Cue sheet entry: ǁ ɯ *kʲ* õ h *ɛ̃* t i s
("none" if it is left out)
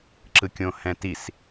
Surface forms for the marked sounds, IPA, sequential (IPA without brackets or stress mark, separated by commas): kʲ, ɛ̃